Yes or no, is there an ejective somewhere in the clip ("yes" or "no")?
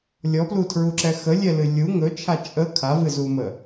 yes